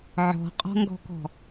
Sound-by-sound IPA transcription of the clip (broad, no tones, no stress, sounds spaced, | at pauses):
ʕ ɔ̤ qʼ ɔ̤ ŋ ɡ ɔ̤ k ɔ̤